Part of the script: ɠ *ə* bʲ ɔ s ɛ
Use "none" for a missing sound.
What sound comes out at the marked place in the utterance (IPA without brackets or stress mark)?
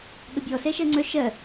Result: ə